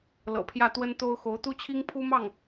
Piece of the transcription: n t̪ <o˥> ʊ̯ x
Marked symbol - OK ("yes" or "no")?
yes